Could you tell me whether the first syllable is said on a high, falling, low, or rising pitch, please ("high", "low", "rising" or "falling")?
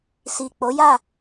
low